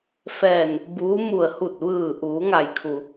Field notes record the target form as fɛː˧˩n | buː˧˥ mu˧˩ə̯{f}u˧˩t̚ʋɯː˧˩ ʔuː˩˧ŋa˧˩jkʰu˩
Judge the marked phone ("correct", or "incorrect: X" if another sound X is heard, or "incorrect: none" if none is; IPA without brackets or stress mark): incorrect: h